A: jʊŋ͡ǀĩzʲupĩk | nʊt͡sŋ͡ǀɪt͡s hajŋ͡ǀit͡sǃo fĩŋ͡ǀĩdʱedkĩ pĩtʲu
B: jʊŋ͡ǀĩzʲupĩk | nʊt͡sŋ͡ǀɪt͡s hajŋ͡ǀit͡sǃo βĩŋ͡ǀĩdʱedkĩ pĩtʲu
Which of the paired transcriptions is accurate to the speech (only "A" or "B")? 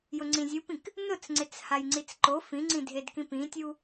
A